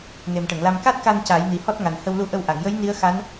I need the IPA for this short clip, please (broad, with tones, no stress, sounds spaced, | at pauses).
n e˨˩ m ʈ ə˨˩˨ ŋ l a˧ m k a˦˥ t̚ k a˧ n c a˨˩˦ j n i˨˩ h ɔ˦˥ t̚ ŋ a˨˩ n h ə˧ w l u˧˥ ʔ ə˧ w ʔ a˨˩˨ ŋ j ə˧˥ j n i˧˥ ə̯ x a˧˥ n